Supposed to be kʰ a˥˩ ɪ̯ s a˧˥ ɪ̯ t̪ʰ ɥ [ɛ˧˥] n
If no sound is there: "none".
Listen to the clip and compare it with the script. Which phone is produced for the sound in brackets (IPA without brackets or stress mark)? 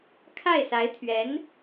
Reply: ɛ˧˥